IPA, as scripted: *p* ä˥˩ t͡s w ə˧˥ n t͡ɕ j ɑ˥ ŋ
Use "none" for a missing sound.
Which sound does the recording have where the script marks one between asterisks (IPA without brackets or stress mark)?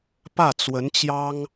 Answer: p